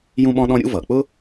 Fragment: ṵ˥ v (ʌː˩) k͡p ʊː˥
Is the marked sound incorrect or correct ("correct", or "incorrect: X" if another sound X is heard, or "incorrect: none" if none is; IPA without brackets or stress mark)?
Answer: correct